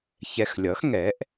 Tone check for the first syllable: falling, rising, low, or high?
low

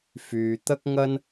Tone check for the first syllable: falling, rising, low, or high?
low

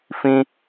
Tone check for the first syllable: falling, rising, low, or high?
high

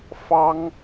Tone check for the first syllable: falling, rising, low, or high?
high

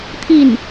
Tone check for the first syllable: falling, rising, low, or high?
falling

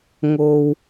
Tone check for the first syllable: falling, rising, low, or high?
low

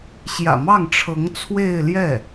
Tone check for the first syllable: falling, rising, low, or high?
low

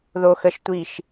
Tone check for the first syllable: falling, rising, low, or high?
high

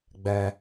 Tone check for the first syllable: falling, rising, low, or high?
low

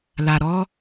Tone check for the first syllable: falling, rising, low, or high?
low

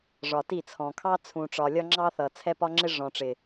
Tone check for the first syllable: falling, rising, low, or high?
low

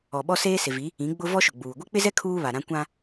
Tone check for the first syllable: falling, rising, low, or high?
low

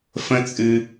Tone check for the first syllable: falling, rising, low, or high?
high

